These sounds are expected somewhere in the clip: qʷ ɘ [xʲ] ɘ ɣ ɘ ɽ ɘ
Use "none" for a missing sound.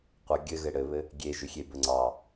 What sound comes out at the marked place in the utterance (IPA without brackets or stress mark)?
ɡʲ